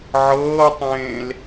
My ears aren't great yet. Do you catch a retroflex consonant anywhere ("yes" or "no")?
no